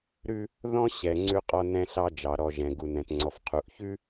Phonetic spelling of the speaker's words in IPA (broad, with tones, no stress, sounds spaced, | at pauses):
ɾ ʉ˦ | ð ɔ̃˦ ɕ ɛ˨ ŋ͡ǀ ʉ˦ qʼ ɔ˦ n ɛ̃˦ ɬ ɑ˦ d͡ʒ ɑ˨ ɾ ɔ˨ ʒ ɛ̃˨ ɡ u˨ n ɛ̃˨ t ŋ͡ǀ ɔ˨ f qʰ u˨ ʔ ç ʉ˦